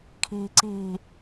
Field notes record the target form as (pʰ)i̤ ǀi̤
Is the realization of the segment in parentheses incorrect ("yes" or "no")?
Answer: yes